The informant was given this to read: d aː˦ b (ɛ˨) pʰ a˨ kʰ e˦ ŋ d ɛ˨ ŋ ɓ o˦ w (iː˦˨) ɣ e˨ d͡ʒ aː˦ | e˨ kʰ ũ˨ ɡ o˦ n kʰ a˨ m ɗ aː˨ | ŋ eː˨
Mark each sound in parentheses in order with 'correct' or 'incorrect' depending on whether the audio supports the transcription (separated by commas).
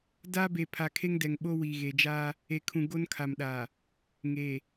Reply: incorrect, incorrect